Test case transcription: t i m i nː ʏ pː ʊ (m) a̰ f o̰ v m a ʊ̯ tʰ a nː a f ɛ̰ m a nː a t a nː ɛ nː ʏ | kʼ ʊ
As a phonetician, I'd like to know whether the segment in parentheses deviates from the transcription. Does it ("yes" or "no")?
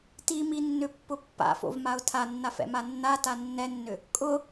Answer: yes